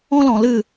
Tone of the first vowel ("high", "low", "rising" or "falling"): high